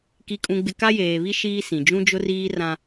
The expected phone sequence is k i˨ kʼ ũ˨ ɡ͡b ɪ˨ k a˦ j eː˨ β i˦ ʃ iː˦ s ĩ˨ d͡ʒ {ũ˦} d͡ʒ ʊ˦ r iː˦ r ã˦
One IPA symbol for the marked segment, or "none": ũ˦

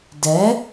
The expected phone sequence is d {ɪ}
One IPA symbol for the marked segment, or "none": ɛ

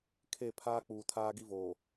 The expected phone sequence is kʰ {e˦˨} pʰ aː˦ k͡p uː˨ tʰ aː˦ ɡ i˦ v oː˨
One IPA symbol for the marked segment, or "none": e˦˨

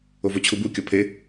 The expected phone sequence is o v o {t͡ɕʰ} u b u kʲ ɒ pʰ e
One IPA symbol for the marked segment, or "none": t͡ɕʰ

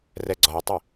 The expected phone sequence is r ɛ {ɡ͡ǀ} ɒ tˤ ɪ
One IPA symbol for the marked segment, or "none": ɡ͡ǀ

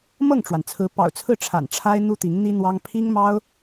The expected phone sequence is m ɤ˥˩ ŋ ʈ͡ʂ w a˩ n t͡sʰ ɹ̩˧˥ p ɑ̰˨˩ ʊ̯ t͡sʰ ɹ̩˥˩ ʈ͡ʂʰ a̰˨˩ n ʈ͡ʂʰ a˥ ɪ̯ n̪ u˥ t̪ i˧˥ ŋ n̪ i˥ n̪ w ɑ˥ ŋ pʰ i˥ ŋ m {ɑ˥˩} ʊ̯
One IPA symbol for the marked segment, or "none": ɑ˥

